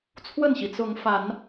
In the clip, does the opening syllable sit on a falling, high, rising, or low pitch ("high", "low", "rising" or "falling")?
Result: falling